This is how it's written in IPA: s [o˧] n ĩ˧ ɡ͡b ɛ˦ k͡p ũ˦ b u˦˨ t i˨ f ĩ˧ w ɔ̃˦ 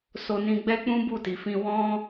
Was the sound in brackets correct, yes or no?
yes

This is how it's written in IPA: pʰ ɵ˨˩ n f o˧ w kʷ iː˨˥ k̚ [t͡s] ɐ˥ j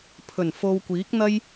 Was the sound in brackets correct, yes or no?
no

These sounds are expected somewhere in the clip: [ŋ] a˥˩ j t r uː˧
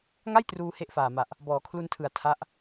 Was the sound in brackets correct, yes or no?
yes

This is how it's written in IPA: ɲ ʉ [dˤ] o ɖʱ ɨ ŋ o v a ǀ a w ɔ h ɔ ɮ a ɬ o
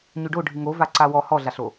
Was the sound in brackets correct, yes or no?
no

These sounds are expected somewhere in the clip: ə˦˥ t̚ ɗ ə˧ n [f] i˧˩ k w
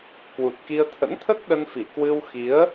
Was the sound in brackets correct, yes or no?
yes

